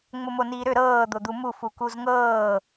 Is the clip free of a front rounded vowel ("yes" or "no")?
no